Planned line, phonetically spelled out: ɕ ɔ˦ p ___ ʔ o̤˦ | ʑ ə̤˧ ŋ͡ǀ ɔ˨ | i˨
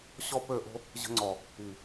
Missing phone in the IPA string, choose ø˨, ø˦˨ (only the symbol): ø˦˨